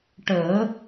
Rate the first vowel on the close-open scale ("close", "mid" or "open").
mid